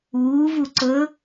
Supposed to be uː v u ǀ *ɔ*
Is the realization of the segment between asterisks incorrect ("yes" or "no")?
yes